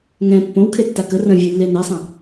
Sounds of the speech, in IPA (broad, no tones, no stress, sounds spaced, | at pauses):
ŋ ɛ̃ pː õ w kʰ e tː a k ə r ə̃ vʲ ʉ lː e n ɛ sˤ ə̃